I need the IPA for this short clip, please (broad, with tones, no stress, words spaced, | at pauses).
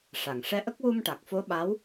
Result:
ʂa˨˩˨ŋʂɛ˧˥ʔə˦˥k̚ wu˧mʈa˨˩k̚fo˧˥ ɓa˧˥w